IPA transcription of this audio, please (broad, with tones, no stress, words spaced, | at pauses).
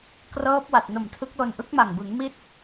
krɤː˦˥p̚ wa˨˩t̚ no˨˩mtʰɯ˦˥k̚lo˧n ʔɯ˦˥k̚ma˨˩ŋbɯ˩˦ŋ mi˦˥t̚